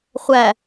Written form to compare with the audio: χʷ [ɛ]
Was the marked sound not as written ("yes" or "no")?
yes